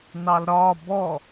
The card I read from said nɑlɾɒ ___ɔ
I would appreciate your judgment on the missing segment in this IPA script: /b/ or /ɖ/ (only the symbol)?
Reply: b